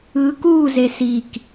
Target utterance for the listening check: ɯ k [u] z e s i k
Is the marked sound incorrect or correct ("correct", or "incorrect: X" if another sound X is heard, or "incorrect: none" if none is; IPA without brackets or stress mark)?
correct